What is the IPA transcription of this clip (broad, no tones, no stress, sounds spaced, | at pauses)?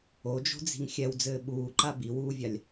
o d͡ʒ o̤ d͡z i̤ ŋ xʲ ɛ w d͡z ɘː ɓ uː ǃ a b i w uː vʲ a lʲ